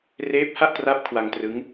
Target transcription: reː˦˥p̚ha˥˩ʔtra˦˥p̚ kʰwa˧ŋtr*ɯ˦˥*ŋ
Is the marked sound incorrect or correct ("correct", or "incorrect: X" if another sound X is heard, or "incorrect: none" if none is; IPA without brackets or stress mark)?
correct